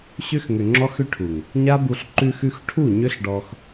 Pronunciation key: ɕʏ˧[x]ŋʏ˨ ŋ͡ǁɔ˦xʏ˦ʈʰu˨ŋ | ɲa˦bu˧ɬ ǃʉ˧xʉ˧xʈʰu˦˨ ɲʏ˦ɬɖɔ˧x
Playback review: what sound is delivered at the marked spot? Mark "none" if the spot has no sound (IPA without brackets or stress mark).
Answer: x